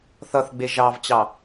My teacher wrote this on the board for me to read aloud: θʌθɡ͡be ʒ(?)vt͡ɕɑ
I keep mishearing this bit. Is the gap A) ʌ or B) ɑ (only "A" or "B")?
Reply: B